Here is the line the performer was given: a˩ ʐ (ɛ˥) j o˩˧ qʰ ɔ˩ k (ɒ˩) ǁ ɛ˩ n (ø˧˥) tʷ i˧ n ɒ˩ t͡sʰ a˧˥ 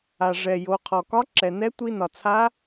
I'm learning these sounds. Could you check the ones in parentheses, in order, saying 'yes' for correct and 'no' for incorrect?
no, no, no

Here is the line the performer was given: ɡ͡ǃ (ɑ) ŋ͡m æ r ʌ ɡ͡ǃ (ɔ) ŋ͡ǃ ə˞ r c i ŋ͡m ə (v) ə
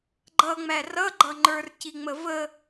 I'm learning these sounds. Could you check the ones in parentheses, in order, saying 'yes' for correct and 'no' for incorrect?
no, no, yes

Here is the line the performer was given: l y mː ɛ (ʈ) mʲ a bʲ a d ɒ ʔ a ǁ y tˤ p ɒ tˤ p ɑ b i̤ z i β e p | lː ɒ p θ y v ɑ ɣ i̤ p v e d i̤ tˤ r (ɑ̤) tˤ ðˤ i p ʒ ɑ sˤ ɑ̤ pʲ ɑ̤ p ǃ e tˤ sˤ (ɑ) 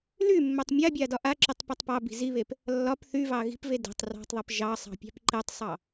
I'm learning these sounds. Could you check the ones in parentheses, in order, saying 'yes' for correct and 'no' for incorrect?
no, yes, yes

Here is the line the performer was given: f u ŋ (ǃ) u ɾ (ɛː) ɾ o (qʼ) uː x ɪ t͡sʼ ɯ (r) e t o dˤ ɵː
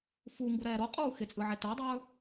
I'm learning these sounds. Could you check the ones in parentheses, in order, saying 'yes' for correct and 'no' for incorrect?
no, yes, yes, no

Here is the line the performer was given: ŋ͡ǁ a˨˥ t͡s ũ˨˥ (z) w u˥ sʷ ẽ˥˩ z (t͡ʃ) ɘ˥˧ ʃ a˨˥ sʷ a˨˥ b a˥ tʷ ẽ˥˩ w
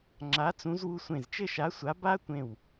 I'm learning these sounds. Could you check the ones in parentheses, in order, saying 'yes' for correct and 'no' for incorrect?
yes, yes

